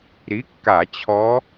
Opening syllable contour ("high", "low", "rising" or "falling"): rising